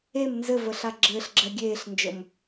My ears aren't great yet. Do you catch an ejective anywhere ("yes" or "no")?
no